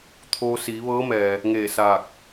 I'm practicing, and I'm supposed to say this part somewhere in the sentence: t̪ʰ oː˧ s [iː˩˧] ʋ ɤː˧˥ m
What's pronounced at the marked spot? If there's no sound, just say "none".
iː˩˧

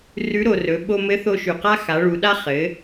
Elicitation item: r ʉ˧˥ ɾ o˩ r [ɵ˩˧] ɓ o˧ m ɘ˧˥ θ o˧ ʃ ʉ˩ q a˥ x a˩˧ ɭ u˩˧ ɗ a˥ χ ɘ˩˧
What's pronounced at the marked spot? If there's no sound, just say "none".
ɵ˩˧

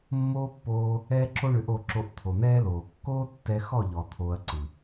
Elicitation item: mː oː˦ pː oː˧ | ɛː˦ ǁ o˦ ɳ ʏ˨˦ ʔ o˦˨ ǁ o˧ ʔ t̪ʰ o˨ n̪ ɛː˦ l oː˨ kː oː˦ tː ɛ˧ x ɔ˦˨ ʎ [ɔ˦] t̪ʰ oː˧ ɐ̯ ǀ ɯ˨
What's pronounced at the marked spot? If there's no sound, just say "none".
ɔ˨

